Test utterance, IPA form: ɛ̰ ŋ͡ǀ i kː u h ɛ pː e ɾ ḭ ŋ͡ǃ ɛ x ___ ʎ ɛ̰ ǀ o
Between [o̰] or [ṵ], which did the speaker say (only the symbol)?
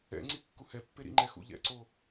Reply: ṵ